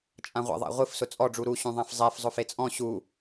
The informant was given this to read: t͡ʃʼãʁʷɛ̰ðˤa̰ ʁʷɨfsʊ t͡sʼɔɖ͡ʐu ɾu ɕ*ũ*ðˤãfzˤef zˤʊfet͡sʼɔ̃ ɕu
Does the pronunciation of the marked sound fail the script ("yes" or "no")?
no